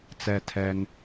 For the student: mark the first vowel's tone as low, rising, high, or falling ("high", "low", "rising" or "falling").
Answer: falling